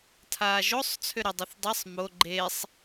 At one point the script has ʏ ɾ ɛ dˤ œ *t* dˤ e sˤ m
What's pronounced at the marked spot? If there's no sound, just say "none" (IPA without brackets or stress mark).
θ